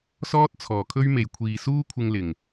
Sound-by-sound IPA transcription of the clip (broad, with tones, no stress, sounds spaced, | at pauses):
s ɔː˥ t̚ t͡sʰ ɔː˨˩ kʰ ɵ˥ ɥ m e˨ j kʷʰ iː˨ s uː˥ kʷʰ ɪ˧ ŋ l ɪ˨˩ ŋ